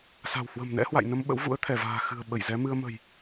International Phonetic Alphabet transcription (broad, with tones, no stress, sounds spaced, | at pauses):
s a̤˨˩ w h w ə̤˨˩ m n ɛ̰˧˥ h w a̰˧˨ j n ə˧ m ɓ ə̰˧˥ w v ṵ˧˥ ə̯ t̪ʰ ɛ˧˩ v a̤ː˨˩ x ɨ̤˨˩ ə̯ ɓ ə˧˩ j z ɛ˨˦ m ɨ˧ ə̯ m ə̤˨˩ j